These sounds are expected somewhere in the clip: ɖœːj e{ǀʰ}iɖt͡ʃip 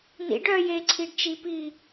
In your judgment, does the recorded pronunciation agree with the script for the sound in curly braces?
yes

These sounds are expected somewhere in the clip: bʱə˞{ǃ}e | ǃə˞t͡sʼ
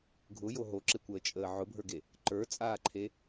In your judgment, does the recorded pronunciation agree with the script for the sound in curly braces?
no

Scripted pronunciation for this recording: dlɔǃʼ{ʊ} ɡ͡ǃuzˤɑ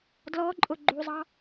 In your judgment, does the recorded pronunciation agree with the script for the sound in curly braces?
yes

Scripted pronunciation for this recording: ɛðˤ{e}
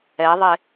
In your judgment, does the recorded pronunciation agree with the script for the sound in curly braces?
yes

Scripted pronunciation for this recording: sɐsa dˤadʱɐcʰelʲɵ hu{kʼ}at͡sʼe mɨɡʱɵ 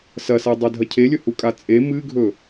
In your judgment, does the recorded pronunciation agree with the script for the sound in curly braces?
yes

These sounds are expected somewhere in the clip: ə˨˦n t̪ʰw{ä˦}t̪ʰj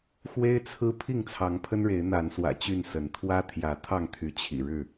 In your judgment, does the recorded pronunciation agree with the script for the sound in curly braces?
yes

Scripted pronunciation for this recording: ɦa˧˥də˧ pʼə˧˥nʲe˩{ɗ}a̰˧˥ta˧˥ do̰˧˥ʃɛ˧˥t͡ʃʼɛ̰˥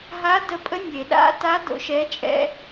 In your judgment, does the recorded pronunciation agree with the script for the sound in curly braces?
yes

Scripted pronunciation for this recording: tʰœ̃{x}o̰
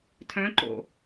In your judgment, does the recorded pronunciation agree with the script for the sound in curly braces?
no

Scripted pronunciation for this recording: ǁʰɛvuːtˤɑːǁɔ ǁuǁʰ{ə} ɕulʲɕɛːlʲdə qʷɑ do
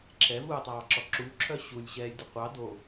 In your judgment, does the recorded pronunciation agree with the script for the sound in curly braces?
no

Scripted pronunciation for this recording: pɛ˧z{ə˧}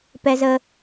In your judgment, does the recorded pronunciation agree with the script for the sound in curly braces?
yes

